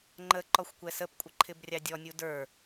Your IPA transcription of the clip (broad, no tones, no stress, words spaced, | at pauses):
ŋ͡ǃə ǃɔxʷkʷɛsəpkʷʼə ǃʰɪbrʲɑdʲɔnʲu də˞